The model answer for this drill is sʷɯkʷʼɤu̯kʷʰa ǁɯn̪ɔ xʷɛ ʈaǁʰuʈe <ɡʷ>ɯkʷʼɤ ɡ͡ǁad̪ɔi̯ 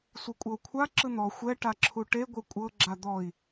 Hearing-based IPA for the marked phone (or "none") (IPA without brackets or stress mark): ɡʷ